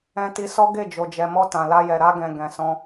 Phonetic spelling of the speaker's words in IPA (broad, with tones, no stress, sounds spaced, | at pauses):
ɛ̃˧ t i˧ s ɔ˦ ɡ e˦˨ d͡ʒ o˨ d͡ʒ ɛ˨ m ɔ˧ t ã˨ l a˧ j ɛ˨ ɾ a˧ ɡ ɛ̃˨ ɡ ɛ̃˨ s ɔ̃˧